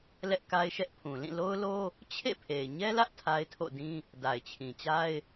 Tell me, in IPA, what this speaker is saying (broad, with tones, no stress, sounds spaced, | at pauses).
l ɛ˦ ʔ k a˦ ɪ̯ ʃ ɛ˦ ʔ pʰ ũ˨ l ĩ˦˨ l o˦ ʊ̯ l o˦ | t͡ɕʰ ḛ˦˨ pʰ e˨ ɪ̯ ɲ ɛ˦ l ä˦ ʔ tʰ a˦ ɪ̯ tʰ o̰˦˨ d ĩ˦ | d a˨ ɪ̯ t͡ɕʰ ĩ˨ t͡ɕ a˦ ɪ̯